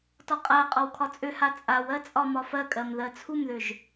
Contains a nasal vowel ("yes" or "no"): no